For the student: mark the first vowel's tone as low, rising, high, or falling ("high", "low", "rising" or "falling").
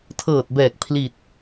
low